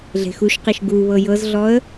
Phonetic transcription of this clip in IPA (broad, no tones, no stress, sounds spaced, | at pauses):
ɮ e̤ x u ʃ q i ʃ ɡ u β ɤ j ɤ z ɮ ɔ ə̯